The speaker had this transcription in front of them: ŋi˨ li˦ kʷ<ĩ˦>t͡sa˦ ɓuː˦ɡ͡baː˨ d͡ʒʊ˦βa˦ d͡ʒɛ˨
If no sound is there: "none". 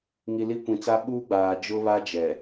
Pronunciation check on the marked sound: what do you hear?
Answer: ĩ˨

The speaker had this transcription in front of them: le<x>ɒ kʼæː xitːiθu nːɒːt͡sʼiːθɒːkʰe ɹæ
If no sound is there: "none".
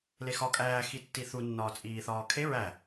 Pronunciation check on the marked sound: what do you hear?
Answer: x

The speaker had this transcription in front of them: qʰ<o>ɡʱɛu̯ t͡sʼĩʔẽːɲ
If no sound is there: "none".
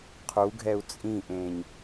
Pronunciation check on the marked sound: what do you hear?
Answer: u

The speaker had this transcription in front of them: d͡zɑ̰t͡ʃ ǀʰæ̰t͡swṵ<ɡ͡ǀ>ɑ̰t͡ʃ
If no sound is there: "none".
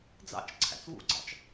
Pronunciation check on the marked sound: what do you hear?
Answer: ɡ͡ǀ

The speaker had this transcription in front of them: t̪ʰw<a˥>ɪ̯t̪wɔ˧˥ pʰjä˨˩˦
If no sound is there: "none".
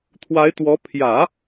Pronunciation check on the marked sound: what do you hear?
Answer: a˧˥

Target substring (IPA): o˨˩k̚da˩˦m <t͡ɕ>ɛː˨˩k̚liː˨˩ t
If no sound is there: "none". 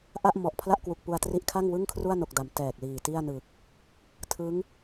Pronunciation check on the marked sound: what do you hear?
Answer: t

